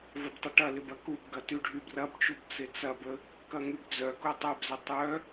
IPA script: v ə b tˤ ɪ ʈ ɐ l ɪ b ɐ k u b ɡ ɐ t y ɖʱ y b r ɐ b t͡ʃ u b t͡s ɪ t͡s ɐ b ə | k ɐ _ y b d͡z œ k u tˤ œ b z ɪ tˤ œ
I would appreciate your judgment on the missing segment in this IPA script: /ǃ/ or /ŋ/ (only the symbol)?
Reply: ŋ